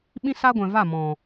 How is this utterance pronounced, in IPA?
ɓ ĩ˦ s a˦ ɡʷ ɛ̃˨ v a˦˨ m ɔ̃˨

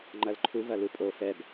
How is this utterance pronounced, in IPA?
ŋ͡ǃ ɐ l ǃʰ u v ɐ l u pʼ o f ɛ b

